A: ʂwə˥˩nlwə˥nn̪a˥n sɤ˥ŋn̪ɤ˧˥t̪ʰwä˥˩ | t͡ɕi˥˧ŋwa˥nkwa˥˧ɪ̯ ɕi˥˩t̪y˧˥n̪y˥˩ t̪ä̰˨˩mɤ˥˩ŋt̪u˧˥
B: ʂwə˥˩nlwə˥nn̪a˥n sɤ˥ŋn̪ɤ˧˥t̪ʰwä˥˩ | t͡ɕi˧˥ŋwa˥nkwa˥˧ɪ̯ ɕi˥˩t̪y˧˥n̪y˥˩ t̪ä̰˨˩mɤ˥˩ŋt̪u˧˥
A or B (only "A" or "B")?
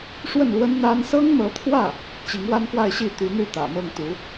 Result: B